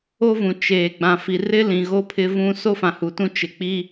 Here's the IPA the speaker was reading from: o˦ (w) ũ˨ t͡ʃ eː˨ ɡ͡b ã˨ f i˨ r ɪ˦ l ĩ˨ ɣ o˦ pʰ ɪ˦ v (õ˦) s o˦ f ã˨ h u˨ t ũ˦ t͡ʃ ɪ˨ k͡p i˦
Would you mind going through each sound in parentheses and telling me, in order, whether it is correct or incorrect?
incorrect, incorrect

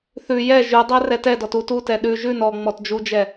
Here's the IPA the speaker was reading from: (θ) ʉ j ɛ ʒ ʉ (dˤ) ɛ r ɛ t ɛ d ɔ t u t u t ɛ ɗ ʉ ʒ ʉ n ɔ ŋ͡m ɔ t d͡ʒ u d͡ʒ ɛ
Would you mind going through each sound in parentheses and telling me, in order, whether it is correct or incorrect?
correct, correct

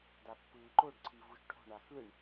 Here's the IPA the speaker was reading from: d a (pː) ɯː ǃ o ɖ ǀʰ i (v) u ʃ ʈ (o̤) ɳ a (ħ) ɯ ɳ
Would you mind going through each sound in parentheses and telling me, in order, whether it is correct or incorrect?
correct, correct, correct, incorrect

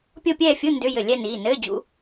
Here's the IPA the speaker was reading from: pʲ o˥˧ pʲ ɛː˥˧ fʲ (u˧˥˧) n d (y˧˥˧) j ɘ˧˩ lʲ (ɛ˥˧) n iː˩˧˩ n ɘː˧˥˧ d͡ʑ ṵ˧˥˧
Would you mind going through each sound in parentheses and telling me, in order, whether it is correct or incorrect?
correct, incorrect, correct

